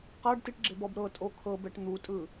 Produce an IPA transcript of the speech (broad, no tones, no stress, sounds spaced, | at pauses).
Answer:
q a ɖ t i ʈ ɡ͡ǁ e b ɔ b ɾ ɤ tʼ o kʰ ɤ b ɛ ʈ n̪ u tʼ ɯ